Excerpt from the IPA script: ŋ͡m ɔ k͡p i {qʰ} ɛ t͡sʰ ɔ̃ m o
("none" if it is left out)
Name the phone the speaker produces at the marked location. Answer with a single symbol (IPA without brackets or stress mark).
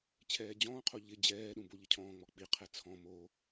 qʰ